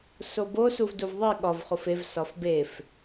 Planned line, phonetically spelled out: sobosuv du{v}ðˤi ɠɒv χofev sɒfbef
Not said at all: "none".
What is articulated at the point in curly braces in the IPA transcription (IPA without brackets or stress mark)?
v